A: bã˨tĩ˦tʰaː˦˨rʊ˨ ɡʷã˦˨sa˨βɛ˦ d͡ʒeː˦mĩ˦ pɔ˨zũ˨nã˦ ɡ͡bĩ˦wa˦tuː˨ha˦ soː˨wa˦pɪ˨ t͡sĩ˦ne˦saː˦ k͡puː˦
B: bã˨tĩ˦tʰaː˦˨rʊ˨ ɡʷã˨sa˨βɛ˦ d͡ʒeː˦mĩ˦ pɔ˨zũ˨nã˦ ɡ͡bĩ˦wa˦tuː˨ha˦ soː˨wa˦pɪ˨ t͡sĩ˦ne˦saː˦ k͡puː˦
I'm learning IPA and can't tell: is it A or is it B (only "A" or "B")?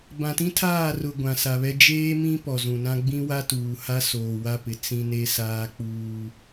B